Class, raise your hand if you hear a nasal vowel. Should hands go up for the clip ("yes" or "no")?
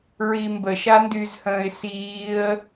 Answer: yes